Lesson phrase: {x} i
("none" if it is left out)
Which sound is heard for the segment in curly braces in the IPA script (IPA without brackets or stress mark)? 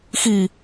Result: x